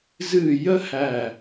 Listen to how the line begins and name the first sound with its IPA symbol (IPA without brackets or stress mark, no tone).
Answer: z